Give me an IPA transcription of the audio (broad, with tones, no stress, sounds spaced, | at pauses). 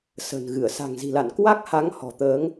s ə̤˨˩ n ɣ ɨ˧˩ ə̯ s a̤˨˩ ŋ z i̤˨˩ l a̰˧˨ n k w a˦˥ k̚ h a˨˦ ŋ h ɔ̤˨˩ t̪ əː˨˦ ŋ